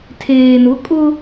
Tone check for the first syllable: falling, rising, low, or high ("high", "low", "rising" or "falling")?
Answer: low